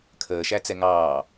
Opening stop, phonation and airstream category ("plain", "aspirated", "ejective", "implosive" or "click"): aspirated